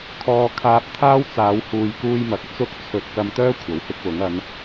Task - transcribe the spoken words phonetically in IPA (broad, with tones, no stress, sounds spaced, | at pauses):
kʰ ɔː˧ kʰ aː˧ p̚ t̪ʰ aː˥ w t͡s aː˨˧ w h uː˨ j k uː˧ j m ɐ˨ k̚ t͡s ʊ˥ k̚ t͡sʰ ɵ˧ t̚ k ɐ˧ m t̪ œː˥ kʷʰ ɐ˨˧ w h ɪ˥ k̚ w ʊ˨˥ ŋ ɐ˨˧ n